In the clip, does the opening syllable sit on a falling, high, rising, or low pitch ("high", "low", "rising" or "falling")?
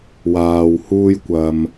low